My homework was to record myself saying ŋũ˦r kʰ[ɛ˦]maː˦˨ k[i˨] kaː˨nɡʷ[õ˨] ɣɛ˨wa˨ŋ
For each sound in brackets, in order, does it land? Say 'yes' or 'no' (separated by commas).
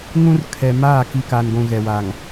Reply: no, yes, no